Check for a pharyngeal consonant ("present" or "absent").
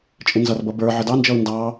present